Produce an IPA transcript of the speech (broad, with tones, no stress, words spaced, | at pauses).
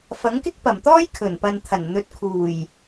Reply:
fɐ˨˥ŋkɪ˥k̚pɐ˨˩mt̪ɔː˥j kʰɵ˨˩npɐ˨nt̪ʰɐ˨˩nn̪ɵ˨˥t̚ kʰuː˨˩j